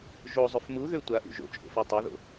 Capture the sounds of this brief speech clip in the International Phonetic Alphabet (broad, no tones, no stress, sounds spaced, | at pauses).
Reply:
ʒ o zˤ ʏ f m u ð ø tʷ a ʔ ṵ ʒ o̰ t͡ʃʼ o̰ f o tˤ o ð o̰